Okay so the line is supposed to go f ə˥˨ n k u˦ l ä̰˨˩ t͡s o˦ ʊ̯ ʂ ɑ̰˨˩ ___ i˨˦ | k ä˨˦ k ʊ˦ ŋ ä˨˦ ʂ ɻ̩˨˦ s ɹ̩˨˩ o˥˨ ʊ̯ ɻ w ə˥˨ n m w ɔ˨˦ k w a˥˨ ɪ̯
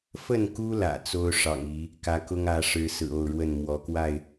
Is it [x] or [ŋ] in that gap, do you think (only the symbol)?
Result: ŋ